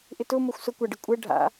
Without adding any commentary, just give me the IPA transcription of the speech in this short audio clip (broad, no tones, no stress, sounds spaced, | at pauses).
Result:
ʔ ɪ t ʊ m o xʷ s ʊ kʷ a ɖ ɪ kʷʼ ɛ ɖʱ a̰